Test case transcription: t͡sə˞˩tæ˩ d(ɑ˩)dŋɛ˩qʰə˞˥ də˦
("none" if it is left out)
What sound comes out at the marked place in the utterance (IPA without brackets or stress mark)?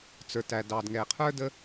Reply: ɑ˩